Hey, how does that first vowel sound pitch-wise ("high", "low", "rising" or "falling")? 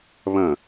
falling